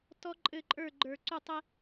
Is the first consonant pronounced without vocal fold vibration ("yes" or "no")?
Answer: yes